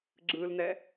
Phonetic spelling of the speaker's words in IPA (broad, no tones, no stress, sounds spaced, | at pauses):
ɡ͡ǁ ɯ l n ɛ